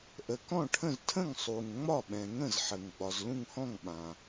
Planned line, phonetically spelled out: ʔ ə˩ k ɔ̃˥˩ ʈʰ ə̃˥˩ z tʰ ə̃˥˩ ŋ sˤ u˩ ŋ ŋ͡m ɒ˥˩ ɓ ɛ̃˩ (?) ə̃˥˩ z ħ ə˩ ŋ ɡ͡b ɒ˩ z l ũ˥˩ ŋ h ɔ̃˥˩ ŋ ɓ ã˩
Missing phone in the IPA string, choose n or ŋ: ŋ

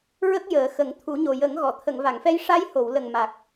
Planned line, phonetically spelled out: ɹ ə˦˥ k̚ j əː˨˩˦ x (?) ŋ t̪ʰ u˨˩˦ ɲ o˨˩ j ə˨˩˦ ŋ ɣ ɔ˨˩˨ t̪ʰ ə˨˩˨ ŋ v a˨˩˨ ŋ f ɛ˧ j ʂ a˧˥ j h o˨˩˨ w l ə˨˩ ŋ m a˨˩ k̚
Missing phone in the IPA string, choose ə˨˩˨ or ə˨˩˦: ə˨˩˦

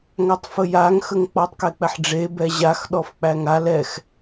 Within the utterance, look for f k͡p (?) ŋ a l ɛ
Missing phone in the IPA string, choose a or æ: æ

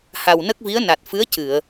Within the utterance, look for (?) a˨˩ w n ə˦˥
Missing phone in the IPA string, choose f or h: h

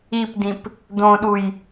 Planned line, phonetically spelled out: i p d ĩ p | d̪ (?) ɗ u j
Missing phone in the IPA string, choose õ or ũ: õ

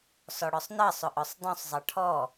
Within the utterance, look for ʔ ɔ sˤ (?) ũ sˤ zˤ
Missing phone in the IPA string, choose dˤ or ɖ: dˤ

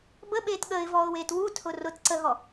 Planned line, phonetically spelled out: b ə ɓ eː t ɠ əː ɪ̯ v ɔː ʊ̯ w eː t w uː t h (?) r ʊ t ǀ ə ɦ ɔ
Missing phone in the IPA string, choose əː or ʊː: ʊː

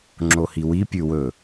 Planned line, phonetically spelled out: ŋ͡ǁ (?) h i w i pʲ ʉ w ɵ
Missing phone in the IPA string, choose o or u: o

